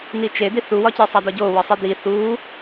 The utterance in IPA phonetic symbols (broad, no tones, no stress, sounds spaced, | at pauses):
n i t͡ʃ e d̪ i θ u w ɒ c e sˤ æ d̪ ɒ ɟ o w ɒ sˤ i d̪ i θ u